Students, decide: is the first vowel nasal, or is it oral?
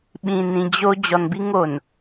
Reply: nasal